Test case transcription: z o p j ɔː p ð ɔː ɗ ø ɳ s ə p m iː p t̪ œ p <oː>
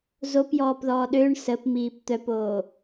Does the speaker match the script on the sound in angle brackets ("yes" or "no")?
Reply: yes